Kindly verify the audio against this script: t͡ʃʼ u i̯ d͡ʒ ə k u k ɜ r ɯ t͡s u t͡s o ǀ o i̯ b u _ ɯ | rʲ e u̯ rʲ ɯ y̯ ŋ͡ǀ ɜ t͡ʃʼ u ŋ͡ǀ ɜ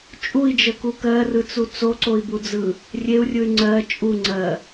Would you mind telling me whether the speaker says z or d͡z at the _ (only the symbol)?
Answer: d͡z